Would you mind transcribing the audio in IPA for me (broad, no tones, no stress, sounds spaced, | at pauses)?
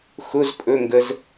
x ʊ z pʼ ɵ ŋ ɡ ə z